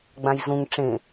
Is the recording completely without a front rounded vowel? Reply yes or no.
yes